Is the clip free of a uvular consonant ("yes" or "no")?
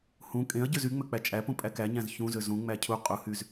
no